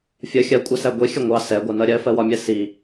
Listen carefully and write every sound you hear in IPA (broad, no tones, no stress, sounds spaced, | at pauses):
fʲ ə xʲ ɜ kʷʼ æ s æ ɡʷ i xʲ ə ŋʷ ɑ s ɛ ɡʷ ɜ n ʌ ɾʲ ɜ f ɜ w ɒ mʲ ɛ s i